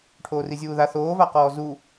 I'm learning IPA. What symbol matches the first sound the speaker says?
ʈʰ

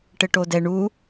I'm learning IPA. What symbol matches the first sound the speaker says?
ʈ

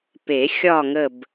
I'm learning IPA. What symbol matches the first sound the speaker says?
p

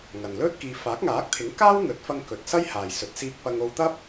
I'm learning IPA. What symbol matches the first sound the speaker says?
ŋ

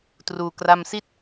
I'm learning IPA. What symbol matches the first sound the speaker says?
t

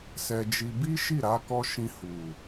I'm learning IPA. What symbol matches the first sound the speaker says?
s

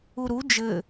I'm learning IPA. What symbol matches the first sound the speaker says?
u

